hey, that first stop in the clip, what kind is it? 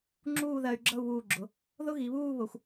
click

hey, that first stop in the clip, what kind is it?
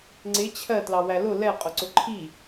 click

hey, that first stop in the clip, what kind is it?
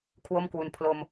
aspirated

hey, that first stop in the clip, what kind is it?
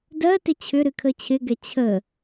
plain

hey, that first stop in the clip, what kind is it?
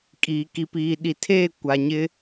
ejective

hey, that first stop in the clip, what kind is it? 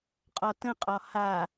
ejective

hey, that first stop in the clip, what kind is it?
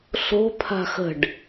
aspirated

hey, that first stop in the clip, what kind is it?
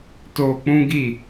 plain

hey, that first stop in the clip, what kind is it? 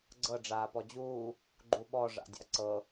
click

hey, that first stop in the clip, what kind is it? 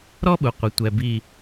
implosive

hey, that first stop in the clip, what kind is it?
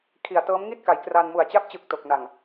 aspirated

